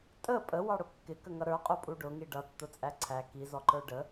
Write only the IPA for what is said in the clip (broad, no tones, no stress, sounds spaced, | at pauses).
tʼ ə pʼ ə w ɑ ɽ ʊ kː ɪ k ə ŋ ʌ ɾ ə˞ qʼ u pʼ u ɖ ʊ ŋ i ɖ ʌ tː ʊ t͡sʼ æ ǀʰ æ k i z ɔ ǃ ə˞ ɖ ə